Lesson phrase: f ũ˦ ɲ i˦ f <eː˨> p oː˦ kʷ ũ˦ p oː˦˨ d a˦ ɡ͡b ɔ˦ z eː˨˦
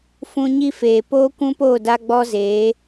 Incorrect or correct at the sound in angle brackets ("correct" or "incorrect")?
correct